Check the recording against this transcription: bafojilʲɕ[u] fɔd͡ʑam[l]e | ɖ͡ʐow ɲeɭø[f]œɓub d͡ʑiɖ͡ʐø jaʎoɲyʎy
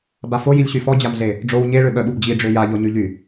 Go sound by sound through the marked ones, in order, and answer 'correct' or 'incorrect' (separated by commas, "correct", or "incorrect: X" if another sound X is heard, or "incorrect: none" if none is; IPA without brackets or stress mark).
incorrect: y, incorrect: ɮ, incorrect: ɓ